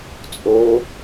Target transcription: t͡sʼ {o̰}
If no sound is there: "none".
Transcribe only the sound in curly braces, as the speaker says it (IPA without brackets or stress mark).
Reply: o